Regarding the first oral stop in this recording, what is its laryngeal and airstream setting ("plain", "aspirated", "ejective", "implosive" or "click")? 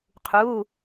aspirated